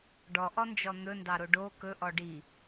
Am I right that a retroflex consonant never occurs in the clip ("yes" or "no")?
no